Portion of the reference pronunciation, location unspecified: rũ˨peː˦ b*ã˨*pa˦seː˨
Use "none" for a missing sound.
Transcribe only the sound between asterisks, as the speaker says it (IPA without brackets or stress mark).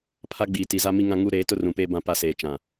ã˦